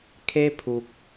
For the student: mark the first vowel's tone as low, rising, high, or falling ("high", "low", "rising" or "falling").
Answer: high